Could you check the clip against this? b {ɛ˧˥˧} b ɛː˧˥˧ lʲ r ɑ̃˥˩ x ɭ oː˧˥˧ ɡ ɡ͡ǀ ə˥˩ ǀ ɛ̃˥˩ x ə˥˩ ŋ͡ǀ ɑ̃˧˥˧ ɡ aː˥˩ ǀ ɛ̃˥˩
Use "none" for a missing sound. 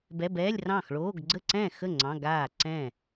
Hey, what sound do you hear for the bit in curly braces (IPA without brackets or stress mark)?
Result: ɛ˧˥˧